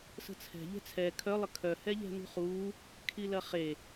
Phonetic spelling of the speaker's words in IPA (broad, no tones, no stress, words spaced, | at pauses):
sə̤t͡sʰɛ̤ ʎɛ̤t͡sʰɛ kʰœ lˠəkʰœ hɛʎɛ̤nṳχuː | kʰilɐχe